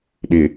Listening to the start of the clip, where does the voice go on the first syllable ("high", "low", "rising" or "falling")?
low